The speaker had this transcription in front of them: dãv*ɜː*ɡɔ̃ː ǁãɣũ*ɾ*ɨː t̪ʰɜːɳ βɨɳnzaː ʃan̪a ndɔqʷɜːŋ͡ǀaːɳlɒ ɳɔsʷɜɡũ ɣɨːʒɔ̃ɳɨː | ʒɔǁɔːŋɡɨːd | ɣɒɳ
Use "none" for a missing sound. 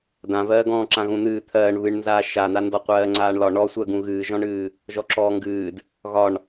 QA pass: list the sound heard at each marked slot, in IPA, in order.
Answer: ɜː, n̪

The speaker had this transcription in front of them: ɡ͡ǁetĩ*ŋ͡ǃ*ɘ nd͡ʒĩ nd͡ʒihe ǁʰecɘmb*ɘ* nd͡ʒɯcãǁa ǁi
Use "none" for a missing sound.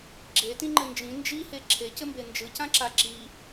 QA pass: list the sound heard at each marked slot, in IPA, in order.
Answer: ŋ͡ǃ, e

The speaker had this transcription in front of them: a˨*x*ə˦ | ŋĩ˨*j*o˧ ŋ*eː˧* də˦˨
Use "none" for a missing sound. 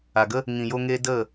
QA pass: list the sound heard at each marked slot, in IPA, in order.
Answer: ɡ, j, eː˧

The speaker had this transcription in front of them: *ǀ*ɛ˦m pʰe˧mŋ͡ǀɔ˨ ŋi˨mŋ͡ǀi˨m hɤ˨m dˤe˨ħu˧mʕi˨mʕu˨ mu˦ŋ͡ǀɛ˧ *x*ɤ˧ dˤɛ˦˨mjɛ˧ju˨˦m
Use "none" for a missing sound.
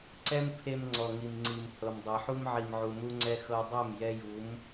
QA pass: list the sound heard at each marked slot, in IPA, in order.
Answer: ǀ, x

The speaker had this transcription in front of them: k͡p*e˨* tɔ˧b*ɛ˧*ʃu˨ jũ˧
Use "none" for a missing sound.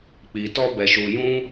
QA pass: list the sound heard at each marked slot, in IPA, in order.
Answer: i˨, ɛ˨

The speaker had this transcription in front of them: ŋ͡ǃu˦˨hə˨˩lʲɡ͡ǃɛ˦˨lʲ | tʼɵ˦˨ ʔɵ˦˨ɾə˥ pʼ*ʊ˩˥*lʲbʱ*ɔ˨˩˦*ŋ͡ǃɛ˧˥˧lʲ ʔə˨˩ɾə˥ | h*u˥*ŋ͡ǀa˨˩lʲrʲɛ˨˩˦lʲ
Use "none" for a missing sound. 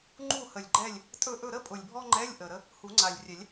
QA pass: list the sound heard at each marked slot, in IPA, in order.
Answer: ʊ˨˩, ɔ˥, u˨˩˦

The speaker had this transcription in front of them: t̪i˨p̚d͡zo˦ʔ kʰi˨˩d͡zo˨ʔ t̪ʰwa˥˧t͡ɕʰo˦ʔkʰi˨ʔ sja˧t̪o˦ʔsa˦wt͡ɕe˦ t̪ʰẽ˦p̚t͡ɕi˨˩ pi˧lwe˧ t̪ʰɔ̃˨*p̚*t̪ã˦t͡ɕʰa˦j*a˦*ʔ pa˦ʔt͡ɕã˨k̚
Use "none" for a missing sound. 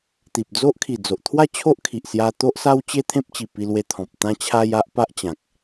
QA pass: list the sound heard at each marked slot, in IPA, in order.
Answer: p̚, a˦

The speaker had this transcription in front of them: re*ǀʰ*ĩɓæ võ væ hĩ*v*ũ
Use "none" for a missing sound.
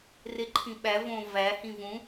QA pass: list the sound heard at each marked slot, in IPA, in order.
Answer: ǃʰ, v

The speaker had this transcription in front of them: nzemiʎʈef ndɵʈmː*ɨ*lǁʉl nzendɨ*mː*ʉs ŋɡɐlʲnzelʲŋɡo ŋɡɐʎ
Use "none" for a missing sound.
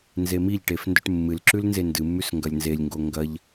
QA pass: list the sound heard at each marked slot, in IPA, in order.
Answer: ɨ, mː

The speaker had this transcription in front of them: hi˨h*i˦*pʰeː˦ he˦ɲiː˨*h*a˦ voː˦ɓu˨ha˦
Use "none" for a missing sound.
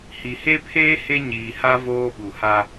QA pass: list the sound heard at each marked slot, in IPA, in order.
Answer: e˦, h

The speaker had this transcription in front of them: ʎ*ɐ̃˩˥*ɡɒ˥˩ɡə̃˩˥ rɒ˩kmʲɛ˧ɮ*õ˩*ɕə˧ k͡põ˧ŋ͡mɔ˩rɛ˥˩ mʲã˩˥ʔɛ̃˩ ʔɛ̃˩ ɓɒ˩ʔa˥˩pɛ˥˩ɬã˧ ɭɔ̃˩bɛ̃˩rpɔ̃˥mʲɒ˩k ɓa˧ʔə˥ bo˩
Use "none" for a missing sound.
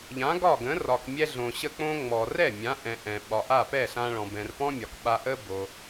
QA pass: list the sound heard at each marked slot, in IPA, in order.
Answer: ã˩˥, õ˩

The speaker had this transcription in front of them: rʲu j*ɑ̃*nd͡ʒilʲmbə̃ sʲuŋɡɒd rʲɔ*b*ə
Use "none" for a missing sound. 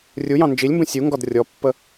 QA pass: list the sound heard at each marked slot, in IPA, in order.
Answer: ɑ̃, pː

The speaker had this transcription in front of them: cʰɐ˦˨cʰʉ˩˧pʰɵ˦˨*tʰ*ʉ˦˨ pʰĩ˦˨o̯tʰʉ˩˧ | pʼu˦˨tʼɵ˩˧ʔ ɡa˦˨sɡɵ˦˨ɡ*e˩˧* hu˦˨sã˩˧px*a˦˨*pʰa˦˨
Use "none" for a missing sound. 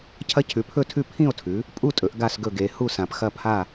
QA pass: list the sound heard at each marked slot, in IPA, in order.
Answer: tʰ, e˩˧, ɐ˦˨

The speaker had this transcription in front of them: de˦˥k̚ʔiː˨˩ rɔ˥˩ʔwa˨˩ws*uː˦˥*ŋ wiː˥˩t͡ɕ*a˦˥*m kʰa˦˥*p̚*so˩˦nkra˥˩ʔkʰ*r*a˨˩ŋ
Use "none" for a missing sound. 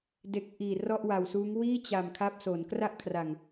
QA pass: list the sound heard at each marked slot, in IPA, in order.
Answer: uː˦˥, a˨˩, p̚, r

